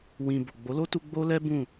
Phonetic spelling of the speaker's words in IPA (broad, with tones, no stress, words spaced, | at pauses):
wĩ˨ bo˨ɡ͡bo˨˦lo˦tu˧ ɡ͡bo˦lɛ˦ bũ˦˨